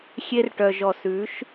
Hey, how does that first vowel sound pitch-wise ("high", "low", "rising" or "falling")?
high